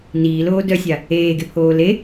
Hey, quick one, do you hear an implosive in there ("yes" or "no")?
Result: no